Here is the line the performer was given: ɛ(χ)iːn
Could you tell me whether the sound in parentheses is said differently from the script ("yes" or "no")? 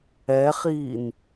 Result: no